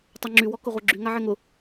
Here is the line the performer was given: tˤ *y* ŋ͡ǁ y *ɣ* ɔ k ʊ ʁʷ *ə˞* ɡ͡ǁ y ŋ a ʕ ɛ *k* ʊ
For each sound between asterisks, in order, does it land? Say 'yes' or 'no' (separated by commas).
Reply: yes, no, yes, no